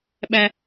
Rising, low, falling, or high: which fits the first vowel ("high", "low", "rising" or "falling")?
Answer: high